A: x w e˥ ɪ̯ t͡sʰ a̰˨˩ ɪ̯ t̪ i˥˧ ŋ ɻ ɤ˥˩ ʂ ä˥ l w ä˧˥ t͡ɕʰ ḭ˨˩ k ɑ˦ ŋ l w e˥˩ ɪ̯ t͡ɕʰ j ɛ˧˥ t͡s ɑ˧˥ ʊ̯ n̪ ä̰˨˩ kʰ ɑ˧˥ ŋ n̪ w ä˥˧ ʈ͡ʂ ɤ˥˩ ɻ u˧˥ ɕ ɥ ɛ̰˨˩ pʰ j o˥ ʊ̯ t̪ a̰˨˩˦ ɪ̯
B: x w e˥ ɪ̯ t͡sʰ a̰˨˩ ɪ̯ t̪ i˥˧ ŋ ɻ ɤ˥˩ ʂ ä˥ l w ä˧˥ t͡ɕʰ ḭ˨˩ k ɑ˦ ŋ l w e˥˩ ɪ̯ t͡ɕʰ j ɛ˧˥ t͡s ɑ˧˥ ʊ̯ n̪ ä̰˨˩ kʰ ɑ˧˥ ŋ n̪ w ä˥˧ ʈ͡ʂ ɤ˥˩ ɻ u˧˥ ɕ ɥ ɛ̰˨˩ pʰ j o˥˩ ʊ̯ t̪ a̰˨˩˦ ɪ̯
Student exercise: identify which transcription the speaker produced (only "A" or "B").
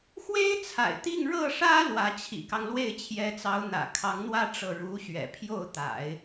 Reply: B